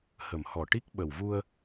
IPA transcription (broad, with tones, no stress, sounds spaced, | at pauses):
h ə˨˩ m h ɔ˨˩ ʈ i˦˥ k̚ ɓ ə˨˩ w v u˧ ə̯